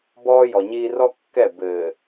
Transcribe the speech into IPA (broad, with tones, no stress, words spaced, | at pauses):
bɔː˦jɔ˨ɲiː˦ rɔ˦kːɛ˦˨ bɘː˨